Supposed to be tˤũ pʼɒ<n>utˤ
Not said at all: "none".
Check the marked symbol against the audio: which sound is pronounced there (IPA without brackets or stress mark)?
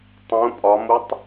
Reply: m